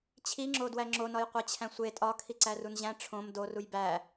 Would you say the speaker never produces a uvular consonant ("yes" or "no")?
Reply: no